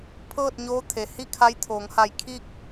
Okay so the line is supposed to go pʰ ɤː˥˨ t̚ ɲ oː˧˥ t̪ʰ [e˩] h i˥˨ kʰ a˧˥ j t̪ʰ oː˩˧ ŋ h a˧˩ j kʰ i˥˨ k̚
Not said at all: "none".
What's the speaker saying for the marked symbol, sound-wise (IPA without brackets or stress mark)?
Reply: e˩